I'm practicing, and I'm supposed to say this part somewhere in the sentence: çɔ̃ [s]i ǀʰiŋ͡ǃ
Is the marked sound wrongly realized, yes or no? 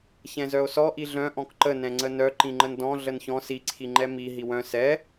no